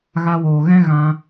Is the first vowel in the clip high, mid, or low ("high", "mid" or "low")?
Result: low